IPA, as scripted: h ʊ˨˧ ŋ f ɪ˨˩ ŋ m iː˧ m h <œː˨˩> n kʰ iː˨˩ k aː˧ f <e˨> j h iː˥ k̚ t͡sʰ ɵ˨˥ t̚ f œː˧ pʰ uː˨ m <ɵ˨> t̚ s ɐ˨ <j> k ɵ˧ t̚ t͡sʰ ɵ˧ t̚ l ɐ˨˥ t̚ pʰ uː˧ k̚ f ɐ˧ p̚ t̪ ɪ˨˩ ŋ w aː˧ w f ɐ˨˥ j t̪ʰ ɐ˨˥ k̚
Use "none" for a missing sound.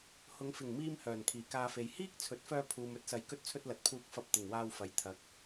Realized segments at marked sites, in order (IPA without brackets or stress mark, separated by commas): œː˨˩, e˨, ɵ˨˥, j